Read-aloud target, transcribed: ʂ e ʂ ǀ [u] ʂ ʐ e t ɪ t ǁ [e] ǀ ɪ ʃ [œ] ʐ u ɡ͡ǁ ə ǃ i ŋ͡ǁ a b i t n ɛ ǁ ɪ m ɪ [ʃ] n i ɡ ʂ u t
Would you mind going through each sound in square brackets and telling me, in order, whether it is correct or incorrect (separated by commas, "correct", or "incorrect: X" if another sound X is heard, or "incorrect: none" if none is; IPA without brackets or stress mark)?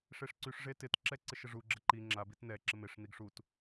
incorrect: y, incorrect: ɛ, incorrect: ə, incorrect: ʂ